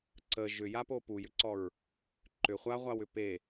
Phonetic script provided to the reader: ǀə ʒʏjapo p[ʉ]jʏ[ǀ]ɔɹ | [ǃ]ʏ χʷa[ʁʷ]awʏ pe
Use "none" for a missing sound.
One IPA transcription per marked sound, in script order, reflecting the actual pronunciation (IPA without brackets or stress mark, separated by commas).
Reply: u, ǀ, ǃ, ʁʷ